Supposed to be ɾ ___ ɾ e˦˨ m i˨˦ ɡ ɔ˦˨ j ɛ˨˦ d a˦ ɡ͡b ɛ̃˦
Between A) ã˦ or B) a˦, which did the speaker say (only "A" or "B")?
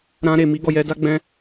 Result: A